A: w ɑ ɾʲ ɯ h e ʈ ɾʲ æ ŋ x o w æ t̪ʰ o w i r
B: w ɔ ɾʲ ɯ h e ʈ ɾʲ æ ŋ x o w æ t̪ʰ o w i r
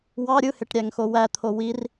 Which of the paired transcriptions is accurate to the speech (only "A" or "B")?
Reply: A